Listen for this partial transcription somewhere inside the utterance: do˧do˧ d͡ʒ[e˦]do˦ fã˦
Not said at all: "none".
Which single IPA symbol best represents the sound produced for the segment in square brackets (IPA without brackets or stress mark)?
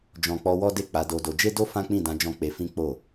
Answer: e˦